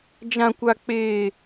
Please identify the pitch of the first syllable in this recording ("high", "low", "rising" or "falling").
high